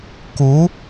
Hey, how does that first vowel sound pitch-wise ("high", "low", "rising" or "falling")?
rising